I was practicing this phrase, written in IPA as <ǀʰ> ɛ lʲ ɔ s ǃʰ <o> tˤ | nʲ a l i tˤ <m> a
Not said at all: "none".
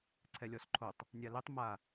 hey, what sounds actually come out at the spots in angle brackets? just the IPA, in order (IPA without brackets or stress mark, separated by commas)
ǀʰ, o, m